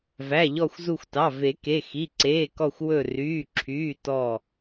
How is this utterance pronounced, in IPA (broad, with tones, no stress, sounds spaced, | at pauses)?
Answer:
v æ˩˧˩ ʎ ɔ˧˩ xʷ z u˧˩ xʷ t ɑ˩˧˩ v e˨˩˦ k e˩˧˩ x i˩˧˩ ǀ eː˩˧˩ k ɔ˧˩ xʷ w ɵ˧˩ r yː˩˧˩ ǁʰ yː˩˧˩ t ɔ˧˩